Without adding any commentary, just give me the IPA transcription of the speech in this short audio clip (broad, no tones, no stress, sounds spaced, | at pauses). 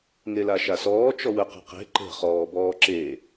ŋ e l a ʃ a s ɔː t͡ʃ ɔ w ə q ə̤ q e̤ ǃ ə̤ χ ɔː b ɔː ǁ e